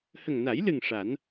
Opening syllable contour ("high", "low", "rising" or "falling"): low